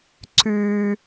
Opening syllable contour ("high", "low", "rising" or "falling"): high